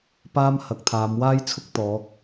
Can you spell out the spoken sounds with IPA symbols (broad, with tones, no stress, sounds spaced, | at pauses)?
p aː˥ m h ɐ˨˥ k̚ t̪ʰ aː˨˧ m w aː˥ j t͡sʰ ʊ˥ k̚ t̪ ɔː˨˥ k̚